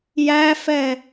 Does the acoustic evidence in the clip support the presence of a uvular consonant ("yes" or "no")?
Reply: no